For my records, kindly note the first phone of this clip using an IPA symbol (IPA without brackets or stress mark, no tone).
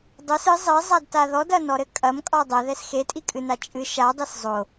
dˤ